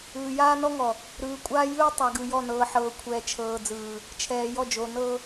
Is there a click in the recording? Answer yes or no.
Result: no